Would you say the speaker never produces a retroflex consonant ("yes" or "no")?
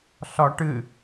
no